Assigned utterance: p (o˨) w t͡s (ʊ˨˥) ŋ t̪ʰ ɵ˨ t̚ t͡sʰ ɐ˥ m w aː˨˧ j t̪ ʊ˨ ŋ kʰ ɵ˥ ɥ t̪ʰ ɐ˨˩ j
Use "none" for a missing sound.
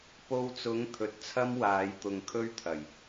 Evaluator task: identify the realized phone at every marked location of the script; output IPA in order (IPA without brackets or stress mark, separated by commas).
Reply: o˧, ʊ˨˥